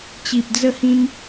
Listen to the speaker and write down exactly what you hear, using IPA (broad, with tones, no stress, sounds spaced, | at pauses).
t͡ɕ i˨ p̚ d͡z ə˥˧ h ĩ˦ m